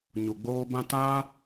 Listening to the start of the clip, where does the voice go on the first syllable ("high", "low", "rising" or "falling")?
low